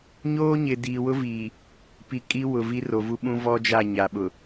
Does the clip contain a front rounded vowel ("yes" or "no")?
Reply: no